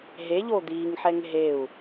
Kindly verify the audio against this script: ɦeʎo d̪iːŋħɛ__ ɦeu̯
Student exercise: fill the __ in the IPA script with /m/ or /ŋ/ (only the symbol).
ŋ